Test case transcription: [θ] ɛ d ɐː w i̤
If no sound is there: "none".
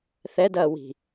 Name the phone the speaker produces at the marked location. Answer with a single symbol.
θ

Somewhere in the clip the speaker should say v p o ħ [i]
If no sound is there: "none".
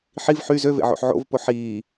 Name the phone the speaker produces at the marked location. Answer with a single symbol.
iː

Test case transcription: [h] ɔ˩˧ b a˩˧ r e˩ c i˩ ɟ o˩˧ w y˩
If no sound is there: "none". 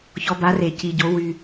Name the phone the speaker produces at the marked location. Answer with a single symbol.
ç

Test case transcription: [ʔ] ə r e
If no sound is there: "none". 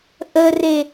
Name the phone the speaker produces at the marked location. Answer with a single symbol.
ʔ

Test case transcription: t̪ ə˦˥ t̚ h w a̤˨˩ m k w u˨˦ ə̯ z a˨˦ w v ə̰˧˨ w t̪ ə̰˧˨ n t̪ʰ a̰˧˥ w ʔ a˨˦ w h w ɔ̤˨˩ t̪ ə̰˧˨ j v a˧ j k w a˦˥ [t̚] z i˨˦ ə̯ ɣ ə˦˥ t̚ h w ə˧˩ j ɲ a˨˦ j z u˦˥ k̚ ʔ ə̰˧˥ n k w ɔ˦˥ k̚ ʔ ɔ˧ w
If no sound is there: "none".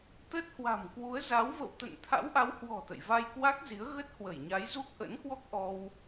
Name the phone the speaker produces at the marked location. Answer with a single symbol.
k̚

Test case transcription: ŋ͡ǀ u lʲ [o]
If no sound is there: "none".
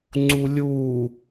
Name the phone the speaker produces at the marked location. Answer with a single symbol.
u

